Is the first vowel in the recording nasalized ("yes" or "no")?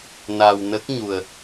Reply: no